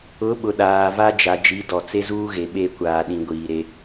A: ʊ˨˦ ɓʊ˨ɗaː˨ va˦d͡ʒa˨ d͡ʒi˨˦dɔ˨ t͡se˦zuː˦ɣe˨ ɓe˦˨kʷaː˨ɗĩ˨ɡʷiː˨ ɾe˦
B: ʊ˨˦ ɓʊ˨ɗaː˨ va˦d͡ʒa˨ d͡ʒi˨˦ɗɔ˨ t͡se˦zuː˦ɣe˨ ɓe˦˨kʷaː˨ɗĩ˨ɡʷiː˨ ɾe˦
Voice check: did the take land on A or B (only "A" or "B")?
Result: A